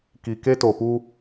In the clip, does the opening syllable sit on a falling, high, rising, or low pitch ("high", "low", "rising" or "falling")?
low